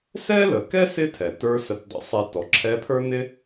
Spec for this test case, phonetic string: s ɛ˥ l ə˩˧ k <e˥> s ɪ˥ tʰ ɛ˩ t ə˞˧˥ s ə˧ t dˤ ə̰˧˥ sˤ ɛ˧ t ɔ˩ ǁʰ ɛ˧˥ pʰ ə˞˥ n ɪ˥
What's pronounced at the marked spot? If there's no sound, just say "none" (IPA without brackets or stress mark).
ɛ˥